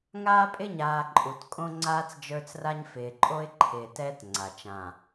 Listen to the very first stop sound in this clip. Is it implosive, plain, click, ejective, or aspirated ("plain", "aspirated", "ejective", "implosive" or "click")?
ejective